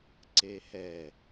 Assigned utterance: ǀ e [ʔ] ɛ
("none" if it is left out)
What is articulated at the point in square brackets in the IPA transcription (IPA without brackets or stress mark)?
h